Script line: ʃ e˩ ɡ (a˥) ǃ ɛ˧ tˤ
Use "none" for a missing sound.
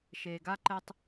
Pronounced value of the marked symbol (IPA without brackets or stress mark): a˥